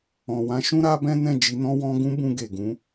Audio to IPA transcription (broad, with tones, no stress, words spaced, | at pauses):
ɔ̃˨wã˨˦ʃũ˦ ɾa˦bɛ̃˦nɛ̃˦˨ d͡ʒi˨˦nɔ̃˦wɔ̃˦ ɡũ˦bũ˧ ɡe˨ɡũ˨˦